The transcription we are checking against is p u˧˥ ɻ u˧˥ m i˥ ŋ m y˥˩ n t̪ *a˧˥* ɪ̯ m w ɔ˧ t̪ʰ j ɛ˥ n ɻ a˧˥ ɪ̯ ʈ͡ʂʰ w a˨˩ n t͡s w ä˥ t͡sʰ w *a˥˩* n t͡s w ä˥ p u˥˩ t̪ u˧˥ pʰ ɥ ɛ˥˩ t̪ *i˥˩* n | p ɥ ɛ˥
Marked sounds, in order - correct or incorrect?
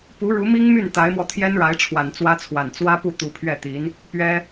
correct, incorrect: a˨˩, incorrect: i˧˥

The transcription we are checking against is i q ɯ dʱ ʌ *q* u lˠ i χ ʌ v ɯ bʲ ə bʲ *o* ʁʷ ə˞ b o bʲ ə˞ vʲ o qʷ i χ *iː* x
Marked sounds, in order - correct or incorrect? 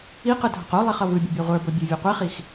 correct, incorrect: ɔ, incorrect: i

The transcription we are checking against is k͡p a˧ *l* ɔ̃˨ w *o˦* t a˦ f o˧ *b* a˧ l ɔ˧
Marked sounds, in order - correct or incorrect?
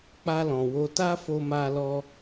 correct, incorrect: o˧, incorrect: m

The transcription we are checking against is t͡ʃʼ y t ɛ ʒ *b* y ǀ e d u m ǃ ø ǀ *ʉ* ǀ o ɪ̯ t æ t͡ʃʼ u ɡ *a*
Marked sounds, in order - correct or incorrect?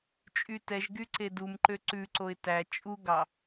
incorrect: ɡ, correct, incorrect: ɑ

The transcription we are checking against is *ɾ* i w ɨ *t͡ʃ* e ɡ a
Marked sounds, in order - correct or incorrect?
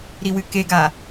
correct, incorrect: k

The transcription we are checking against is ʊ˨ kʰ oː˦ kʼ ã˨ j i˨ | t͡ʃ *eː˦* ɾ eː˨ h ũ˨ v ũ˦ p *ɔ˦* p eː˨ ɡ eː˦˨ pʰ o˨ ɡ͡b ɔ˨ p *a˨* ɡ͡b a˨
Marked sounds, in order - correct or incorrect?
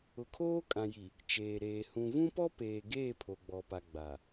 incorrect: eː˨, correct, correct

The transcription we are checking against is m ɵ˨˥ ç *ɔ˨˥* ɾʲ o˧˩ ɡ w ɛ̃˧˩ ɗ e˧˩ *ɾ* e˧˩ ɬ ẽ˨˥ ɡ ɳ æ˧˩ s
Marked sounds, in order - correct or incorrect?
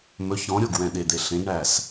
incorrect: ɔ̃˨˥, incorrect: d̪

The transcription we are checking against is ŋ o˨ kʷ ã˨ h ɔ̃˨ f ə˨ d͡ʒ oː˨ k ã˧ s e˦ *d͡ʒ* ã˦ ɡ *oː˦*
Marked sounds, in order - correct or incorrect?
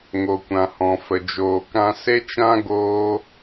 incorrect: t͡ʃ, correct

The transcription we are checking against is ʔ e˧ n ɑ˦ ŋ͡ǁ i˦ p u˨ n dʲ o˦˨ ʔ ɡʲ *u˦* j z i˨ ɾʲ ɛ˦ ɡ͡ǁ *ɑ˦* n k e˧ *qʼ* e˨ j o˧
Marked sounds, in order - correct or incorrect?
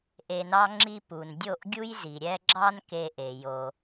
correct, correct, incorrect: ʔ

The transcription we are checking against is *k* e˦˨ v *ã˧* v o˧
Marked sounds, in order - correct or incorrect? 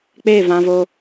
incorrect: k͡p, correct

